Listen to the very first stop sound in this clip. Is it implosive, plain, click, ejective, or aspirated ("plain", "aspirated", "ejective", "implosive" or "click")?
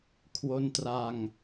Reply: aspirated